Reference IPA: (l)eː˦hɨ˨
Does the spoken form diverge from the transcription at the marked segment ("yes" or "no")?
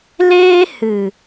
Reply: no